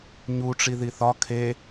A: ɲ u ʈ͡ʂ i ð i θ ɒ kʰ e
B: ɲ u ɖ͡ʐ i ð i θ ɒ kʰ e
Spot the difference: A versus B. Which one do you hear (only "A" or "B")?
A